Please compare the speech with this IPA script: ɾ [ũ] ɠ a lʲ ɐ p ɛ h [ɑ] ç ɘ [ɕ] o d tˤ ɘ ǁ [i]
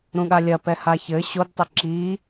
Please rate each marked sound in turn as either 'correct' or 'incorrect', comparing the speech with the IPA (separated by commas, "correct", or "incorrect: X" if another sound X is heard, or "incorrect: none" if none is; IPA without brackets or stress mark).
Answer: correct, incorrect: a, correct, correct